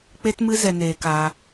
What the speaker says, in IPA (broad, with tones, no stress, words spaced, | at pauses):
k͡pe˦tmɨ˦ zɛ˧neː˧kaː˧